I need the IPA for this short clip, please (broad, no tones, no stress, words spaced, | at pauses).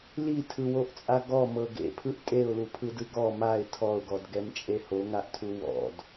litʰɯwoʔt͡sʼa ɡɔmɤ ɡḛpʰɯʔ tʼeʊ̯lupʰɯdɯ ɡɔ maɪ̯ tʰɔʊ̯ɡɔdɡɛmt͡ʃʼe hoŋaʔtʰu wɔ̰d